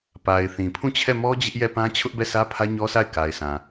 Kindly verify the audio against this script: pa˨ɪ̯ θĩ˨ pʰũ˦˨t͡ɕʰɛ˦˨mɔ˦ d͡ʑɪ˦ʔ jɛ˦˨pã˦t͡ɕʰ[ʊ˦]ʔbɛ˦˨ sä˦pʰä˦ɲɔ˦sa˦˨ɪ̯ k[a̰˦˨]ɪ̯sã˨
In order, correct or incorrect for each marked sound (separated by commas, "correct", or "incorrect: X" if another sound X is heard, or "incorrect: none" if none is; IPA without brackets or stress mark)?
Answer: correct, incorrect: a˨